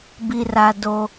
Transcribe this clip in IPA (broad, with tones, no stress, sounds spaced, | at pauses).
b i˨ r a˨ d o˨